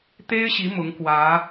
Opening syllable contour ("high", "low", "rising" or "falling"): high